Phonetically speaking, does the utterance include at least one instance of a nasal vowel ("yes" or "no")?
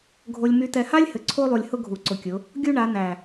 no